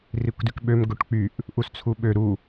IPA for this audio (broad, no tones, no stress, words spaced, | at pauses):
rikʷdykɓøm ɡoʈk͡pyʔ | ʔust͡sʰuɓø ɾu